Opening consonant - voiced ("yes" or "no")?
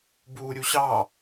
yes